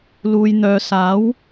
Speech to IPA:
l uː˨ j n̪ œː˨ s aː˨˥ w

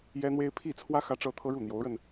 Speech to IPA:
j ɛ˥ n̪ w e˥ ɪ̯ pʰ i˥˩ t͡sʰ w ä˥ x ä˥ ʈ͡ʂ ɤ˥ t̪ʰ ɤ˥ ɻ u˥˩ n̪ j o˧˥ ʊ̯ ɻ ə˧ n

